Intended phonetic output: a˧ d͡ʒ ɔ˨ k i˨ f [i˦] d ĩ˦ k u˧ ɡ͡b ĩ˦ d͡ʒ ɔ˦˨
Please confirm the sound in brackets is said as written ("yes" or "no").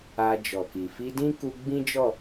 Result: no